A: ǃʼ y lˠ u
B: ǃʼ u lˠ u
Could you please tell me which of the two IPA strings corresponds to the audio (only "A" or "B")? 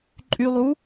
A